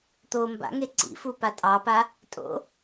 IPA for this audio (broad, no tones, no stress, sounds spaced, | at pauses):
t̪ o m b a̰ ŋ e ǀ ḭ f u p a tʼ ɑ p a | tʼ o̰